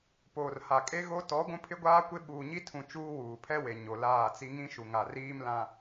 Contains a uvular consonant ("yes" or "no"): no